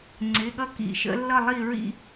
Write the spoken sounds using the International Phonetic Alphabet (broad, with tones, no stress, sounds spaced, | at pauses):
ŋ͡ǀ ɪ˩˧˩ ɠ ʌ˦ k ḭ˧˩ ʃ ə̰˦ lː ʌ˥˨ lˠ i˥˨ ɹ ḭ˥˨